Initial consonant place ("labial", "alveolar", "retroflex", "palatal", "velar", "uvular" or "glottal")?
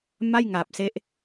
labial